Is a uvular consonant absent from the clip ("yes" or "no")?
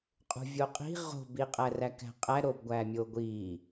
no